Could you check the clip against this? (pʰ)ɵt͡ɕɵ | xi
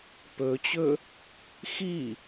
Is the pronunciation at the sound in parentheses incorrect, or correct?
incorrect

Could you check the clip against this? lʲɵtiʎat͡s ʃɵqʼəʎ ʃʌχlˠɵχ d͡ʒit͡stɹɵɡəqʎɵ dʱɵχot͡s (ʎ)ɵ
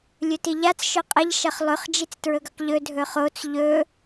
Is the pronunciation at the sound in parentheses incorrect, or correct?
correct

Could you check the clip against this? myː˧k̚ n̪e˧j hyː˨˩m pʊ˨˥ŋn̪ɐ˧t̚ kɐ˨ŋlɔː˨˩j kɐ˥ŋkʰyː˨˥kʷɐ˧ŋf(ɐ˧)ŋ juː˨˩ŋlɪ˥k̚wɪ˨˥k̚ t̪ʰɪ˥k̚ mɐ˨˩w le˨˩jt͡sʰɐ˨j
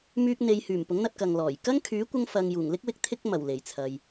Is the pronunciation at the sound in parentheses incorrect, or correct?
incorrect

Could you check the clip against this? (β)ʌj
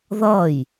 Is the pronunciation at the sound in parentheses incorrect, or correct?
incorrect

